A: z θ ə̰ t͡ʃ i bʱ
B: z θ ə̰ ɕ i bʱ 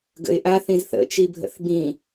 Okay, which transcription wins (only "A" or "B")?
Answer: A